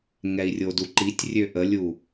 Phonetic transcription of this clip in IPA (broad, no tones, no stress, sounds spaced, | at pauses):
ŋ ɛ i̯ rʲ o d u ǃ i tʲ rʲ ø ʔ ə lʲ u